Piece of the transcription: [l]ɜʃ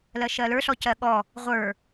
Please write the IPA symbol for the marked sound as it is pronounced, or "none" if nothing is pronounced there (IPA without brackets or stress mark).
l